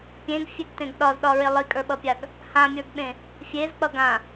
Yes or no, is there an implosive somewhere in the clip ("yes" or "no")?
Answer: yes